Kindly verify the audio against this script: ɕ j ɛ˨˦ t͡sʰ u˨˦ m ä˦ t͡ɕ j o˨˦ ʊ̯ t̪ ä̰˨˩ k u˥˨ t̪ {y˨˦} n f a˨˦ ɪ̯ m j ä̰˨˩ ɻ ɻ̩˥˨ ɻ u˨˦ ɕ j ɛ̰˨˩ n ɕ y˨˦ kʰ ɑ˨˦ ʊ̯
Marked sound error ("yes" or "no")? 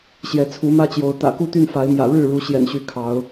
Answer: yes